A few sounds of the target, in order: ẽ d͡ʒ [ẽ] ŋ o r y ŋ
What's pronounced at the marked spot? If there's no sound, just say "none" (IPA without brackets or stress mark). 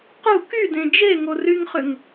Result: e